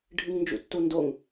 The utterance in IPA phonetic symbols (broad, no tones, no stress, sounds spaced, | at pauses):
ɖʱ ɨ ŋ n d͡ʒ ṵ tː u n d o ŋ